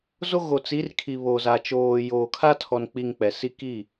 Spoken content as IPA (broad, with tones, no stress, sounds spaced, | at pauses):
z o˦ ɣ o˨ t͡s i˨˦ r kʰ i˨ β o˨ z a˨ t͡ʃ oː˨ j oː˨ kʰ a˦ tʰ ɔ˨ n k͡p i˨ ŋ k͡p ɛ˨ s i˦ k i˦˨